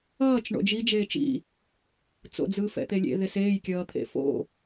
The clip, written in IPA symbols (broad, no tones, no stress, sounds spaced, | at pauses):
ʌː t͡ʃ ɳ o̰ d͡ʒ i d͡ʒ eː t͡ʃ ḭ | t͡s o̰ d͡z ɯː f ɛ̰ t̪ e lʲ ḛ ð e s eː j kʲ ʌː t̪ʰ ḛ f o̰